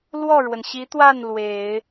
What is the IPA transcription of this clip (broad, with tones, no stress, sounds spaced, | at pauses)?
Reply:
l w ɔ˥˩ ɻ w ə˩ n ɕ i˧˥ t̪ w a˥˩ n l w e˨˩˦ ɪ̯